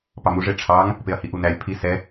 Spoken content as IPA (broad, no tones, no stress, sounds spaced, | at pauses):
p ɑ m u ʐ e ʈ͡ʂʰ ɑ ŋ | p e ɐ̯ h i ʔ u n æ lʲ pʰ i s ɛ